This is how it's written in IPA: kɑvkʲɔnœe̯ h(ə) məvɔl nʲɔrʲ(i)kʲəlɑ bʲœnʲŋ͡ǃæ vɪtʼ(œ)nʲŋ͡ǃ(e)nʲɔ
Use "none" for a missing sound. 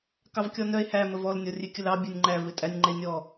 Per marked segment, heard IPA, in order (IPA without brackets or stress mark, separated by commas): æ, e, æ, e